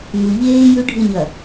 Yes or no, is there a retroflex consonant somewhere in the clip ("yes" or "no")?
yes